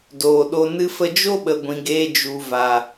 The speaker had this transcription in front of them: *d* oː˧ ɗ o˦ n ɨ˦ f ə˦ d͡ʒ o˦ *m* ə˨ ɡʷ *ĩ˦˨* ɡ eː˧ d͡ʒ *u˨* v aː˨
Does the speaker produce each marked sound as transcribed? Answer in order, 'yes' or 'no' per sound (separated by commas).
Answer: yes, no, no, yes